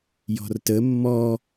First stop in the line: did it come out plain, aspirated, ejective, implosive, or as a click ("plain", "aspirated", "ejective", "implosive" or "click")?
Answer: plain